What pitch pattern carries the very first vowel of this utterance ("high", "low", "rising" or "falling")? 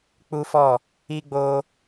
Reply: high